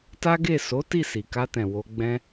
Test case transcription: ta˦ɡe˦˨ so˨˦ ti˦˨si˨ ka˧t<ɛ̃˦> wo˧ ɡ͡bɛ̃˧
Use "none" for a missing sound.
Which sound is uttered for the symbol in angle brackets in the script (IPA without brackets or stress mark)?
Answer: ɛ̃˨